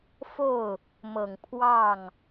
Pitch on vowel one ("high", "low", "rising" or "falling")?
falling